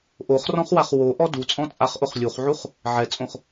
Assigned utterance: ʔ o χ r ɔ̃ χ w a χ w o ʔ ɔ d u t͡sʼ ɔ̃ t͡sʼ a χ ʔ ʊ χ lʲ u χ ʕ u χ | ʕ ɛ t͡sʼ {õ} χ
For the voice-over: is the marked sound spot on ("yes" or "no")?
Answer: yes